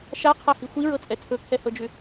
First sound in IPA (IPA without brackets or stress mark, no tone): ʃ